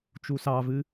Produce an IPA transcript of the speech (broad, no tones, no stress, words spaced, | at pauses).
t͡ʃusɑvɨ